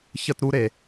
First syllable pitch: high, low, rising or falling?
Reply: high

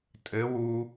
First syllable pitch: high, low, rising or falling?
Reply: rising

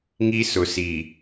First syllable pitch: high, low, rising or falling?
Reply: high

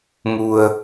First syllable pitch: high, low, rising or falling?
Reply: low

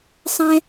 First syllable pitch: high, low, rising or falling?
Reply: high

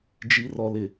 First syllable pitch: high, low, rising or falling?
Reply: low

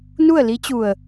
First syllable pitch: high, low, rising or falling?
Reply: falling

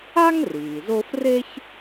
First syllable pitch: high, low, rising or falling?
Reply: high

